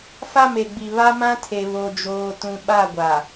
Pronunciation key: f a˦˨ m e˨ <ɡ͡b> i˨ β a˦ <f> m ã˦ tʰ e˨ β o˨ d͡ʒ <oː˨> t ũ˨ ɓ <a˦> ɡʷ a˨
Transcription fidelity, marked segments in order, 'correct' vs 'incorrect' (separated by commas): correct, incorrect, correct, incorrect